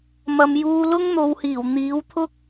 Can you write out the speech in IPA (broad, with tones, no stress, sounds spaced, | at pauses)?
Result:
m ɐ˨ m j uː˧ l ʊ˥ ŋ n̪ o˨˧ w h iː˨˩ w n̪ iː˨˥ w t̪ʰ ʊ˥ k̚